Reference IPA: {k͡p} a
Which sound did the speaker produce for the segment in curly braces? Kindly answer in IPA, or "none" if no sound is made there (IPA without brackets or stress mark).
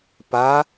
p